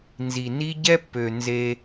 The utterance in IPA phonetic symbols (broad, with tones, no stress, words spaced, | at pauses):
nzi˨ni˦ ɟɛ˦pːø˨ nze˦